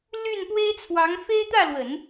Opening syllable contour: falling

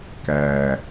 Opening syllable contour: low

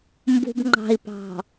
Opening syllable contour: low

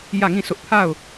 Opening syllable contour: falling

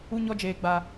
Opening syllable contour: high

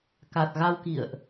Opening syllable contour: low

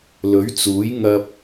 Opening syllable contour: rising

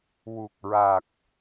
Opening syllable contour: low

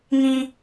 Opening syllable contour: high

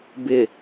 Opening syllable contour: low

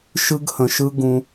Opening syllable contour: high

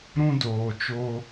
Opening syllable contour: high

